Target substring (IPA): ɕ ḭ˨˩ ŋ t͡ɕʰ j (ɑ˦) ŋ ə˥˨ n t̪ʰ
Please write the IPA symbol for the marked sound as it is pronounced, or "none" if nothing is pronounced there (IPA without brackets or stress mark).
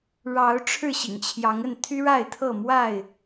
ɑ˨˦